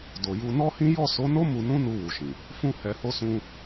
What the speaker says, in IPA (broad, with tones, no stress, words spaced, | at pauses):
do˨ju˧ nɔ˦hĩ˦ jɔ˦˨so˨˦no˦ mu˧nũ˦nu˧ wu˨ʃĩ˨ | fũ˦hɛ˧ho˦sũ˦